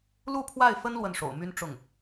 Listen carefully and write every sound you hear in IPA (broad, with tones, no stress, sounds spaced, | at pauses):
l u˥˧ pʰ w a˥˩ ɪ̯ f ə˥ n l w ə˥˩ n ʂ o̰˨˩ ʊ̯ m y˥ n ʈ͡ʂ ʊ˥˩ ŋ